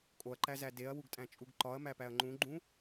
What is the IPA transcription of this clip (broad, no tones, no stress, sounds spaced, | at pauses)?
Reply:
kʼ o ɐ̯ ǃ æ z æ d e ɐ̯ w u ɡ tʼ æ̃ t͡ʃʼ u ɡ ǃ ɒ ɐ̯ m æ p æ ɐ̯ ŋ͡ǃ ũ ɡ͡ǃ ũ